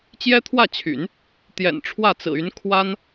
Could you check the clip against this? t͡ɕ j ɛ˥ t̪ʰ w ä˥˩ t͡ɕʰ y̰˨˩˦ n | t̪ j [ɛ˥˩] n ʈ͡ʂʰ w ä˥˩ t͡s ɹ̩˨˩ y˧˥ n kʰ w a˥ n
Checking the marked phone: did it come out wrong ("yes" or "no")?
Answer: yes